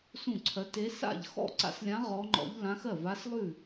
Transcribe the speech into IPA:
sũ˥˩ǀʰɜ˧˥t e˧˥sa̰˥˩ʎ xɔ̰˥˩ǀa̰˧˥slʲã˧˥ ʁɔ˧˥ŋ͡ǃɔ̰˧˥ʎ lã˧˥x ɜ˥˩va˧˥slˠʉ˥˩

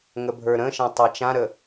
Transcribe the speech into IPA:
ŋəbʱə˞ɾə̃ʃã tˤat͡ʃãɾə

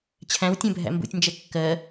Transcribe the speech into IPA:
t͡ɕʰæ̃wtʲɛ̃bʱæ̰ mbṵtʲnd͡ʒɛ kːɜ

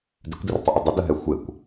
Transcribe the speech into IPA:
dɪkʷdərtˤɪʔə dˤədəɦɛ xʷekʷ

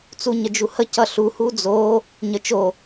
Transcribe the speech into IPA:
t͡suɲəd͡ʒuhə cʌɬu hud͡zo | ɲət͡ʃo

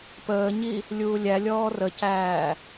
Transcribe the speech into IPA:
pəːɲi | lʲuːlʲælʲɔː rəcæː

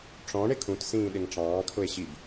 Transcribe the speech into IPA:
ʈ͡ʂɔ̃ ɳɪkʰũt sĩːɗɪŋʈ͡ʂɑ̃ː kʰʊe̯ɕib

